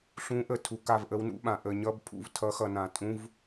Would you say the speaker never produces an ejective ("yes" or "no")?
no